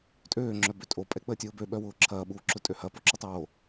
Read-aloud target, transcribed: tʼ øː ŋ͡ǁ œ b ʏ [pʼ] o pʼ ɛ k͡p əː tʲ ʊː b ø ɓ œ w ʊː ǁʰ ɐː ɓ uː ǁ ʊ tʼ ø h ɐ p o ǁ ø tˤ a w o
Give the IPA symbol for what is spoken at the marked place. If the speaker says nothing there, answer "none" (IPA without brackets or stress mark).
tʼ